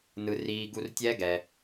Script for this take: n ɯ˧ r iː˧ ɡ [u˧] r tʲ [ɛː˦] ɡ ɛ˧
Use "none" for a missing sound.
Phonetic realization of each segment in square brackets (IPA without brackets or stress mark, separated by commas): u˧, ɛː˦